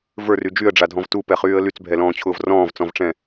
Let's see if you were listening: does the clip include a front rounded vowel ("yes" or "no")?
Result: yes